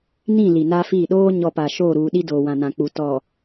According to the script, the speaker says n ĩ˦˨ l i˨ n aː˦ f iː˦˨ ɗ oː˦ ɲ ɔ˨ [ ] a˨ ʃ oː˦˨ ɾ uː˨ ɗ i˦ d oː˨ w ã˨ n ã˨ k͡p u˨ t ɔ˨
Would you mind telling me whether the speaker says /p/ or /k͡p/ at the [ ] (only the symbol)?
p